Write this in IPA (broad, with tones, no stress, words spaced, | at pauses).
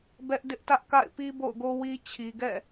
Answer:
bɛ˦ʔ dɪ˦ʔtä˦ʔka̰˦˨ɪ̯pi˦ bo̰˦˨ʊ̯ɡo˦wi˦ t͡ɕʰi˨ɡɛ̰˦˨